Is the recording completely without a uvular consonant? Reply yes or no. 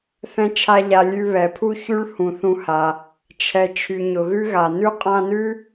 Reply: no